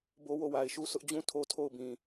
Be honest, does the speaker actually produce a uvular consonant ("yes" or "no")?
no